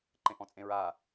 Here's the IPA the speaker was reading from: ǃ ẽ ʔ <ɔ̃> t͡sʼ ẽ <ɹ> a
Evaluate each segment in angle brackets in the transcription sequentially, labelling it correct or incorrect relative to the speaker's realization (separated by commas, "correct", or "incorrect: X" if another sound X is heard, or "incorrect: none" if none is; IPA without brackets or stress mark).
correct, correct